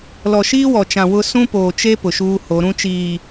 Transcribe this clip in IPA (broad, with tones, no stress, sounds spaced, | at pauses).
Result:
l ɔ˨ ʃ iː˦ w ɔ˨ t͡ʃ ã˨ w ʊ˦ s ũ˦ p oː˨ t͡ʃ e˦ p ʊ˨ ʃ uː˦ h o˨˦ ɾ ũ˦ t͡ʃ iː˨